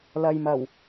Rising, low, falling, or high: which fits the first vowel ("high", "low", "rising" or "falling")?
low